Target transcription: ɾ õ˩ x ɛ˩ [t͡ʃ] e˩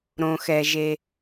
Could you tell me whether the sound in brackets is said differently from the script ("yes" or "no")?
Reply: yes